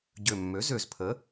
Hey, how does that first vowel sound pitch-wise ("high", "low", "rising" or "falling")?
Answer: low